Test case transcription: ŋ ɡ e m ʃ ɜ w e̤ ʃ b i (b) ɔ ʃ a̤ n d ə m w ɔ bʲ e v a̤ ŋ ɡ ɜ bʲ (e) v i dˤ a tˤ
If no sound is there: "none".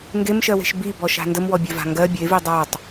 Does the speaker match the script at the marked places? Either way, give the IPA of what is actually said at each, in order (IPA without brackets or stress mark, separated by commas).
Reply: b, e